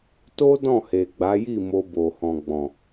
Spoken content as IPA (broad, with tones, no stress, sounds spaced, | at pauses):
t o˦ d ɔ̃˦˨ h e˨ ɡ͡b a˨˦ j i˦˨ m o˧ b o˨ h ɔ̃˨ ɡ͡b ɔ̃˨